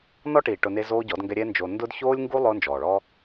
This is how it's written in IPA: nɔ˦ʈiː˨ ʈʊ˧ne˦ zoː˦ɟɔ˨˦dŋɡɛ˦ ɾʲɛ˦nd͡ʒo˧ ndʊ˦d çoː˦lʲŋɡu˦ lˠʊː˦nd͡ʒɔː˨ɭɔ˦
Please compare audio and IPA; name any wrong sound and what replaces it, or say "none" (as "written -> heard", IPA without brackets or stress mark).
none